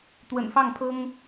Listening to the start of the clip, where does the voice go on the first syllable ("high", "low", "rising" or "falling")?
low